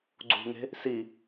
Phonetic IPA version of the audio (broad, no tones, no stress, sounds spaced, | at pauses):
ɡ͡ǀ ṳ ŋ e̤ | s i